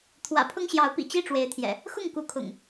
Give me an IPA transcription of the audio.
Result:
t̪ʰ w ä̰˨˩ pʰ ʊ˦ ŋ ɕ j ɑ˨˦ ʊ̯ p ḭ˨˩ t͡ɕ i˥˨ ʈ͡ʂ w e˨˦ ɪ̯ t̪ʰ j ɛ̰˨˩ | x ʊ˥˨ ŋ k u˨˦ kʰ ʊ̰˨˩ ŋ

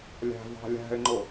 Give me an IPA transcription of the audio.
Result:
lʲ æ̤ v ɑ̤ lʲ æ̤ ɪ̯ ŋ͡ǃ ʊ

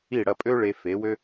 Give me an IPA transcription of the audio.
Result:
i˥˩ ɽ ɐ˧ pʼ ø˥ ɭ e˧ f e˩˥ w ø˥

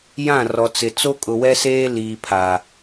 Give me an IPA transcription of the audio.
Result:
j ã˦˨ r ɔ˨ t͡s ɪ˨ t͡s o˦ kʼ ʊ˨ w ɛ˦ s eː˦ l iː˨ pʰ a˨

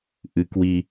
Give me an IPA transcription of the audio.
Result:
ʔ ɨ˨˦ k w i˧

